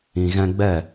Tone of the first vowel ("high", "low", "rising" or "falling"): low